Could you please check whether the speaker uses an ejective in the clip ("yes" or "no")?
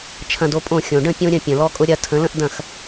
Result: yes